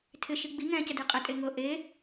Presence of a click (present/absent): absent